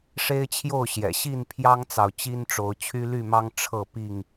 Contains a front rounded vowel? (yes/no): yes